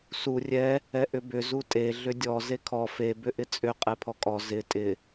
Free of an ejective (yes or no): no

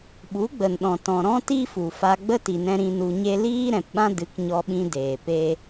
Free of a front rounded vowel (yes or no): yes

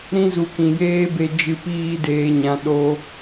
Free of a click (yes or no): yes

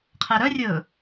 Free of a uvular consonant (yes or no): no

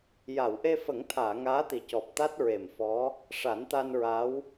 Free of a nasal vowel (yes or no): yes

